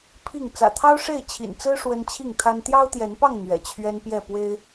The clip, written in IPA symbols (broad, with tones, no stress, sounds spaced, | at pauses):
pʰ i˥˨ ŋ t͡s ä̰˨˩ t̪ʰ ɑ˦ ʊ̯ ʂ e˥˨ ɪ̯ t͡ɕʰ ḭ˨˩ n t͡s ɹ̩˦ ʂ w ə˦ n t͡ɕʰ i˥˨ ŋ t̪ʰ a˦ n t̪ j ɑ˦ ʊ̯ t̪ j ɛ˨˦ n p ɑ˥˨ ŋ n̪ ɥ ɛ̰˨˩ t͡ɕʰ ɥ ɛ˦ n p j ɛ˥˨ p w e˦ ɪ̯